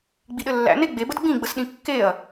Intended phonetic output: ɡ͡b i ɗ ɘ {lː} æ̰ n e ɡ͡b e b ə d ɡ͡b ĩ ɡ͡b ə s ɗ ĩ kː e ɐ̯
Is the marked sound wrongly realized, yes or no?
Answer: no